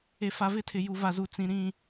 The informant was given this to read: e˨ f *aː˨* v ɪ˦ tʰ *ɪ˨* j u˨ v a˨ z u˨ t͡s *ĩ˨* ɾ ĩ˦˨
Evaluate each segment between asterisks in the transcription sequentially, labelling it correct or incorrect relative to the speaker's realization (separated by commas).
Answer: incorrect, correct, correct